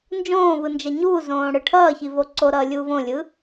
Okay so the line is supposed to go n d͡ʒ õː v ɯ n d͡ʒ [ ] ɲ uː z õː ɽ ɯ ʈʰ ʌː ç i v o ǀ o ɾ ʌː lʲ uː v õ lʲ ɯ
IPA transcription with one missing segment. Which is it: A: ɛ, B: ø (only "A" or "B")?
A